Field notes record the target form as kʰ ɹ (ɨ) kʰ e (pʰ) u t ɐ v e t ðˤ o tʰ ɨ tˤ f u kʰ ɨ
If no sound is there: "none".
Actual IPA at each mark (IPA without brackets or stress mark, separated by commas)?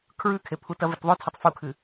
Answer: ʉ, pʰ